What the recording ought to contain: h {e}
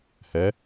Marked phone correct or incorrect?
incorrect